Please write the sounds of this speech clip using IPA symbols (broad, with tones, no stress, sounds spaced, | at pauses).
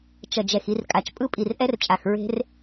t͡ʃ ʌ˨ d͡ʒ ɛ˨ x i˧ r kʼ a˨ t͡ʃ pʼ ɯ˦ pʼ i˨ r ʔ ɛ˦ r t͡ʃʼ a˨ x ɹ e̤˦ r